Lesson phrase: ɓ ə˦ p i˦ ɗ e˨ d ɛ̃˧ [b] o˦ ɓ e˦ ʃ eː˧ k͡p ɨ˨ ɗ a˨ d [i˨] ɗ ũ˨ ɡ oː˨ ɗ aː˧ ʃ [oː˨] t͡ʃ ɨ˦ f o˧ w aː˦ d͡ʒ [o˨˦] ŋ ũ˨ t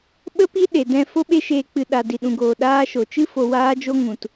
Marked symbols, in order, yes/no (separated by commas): no, yes, no, no